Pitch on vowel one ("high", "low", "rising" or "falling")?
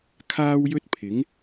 high